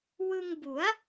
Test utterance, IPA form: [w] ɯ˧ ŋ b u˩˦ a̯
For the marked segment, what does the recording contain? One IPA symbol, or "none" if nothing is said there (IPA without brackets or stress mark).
w